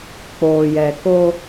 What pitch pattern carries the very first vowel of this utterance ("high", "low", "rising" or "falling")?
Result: low